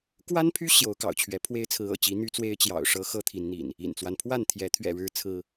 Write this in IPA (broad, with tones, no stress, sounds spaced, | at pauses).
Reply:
k w a˦ n pʰ y˦ ɕ j o˨˦ ʊ̯ k ɑ̰˨˩ ʊ̯ t͡ɕʰ ɥ ɛ˨˦ pʰ w e˦ ɪ̯ t͡sʰ ɹ̩˨˦ ɤ̰˨˩ t͡ɕ i˨˦ n̪ y˦ t͡s w e˦ ɪ̯ t͡ɕ j ɑ̰˨˩ ʊ̯ ʂ ɤ˦ x ɤ˦ t̪ʰ i˨˦ n n̪ ḭ˨˩ n | ḭ˨˩ n t͡s w a˦ n pʰ w a˥˨ n t̪ʰ j ɛ˨˦ t̪ʰ ɥ ɛ̰˨˩ ɻ ɻ̩˨˦ t͡sʰ ɹ̩˦